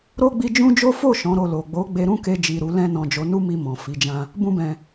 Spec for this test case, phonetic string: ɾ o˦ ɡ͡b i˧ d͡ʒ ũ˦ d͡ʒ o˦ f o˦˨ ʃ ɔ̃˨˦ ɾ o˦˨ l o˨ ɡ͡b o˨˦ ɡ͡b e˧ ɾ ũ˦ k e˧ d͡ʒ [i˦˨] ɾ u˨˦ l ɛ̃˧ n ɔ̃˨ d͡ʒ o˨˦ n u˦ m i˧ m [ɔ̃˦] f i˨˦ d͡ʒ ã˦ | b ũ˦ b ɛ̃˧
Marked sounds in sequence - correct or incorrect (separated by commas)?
incorrect, incorrect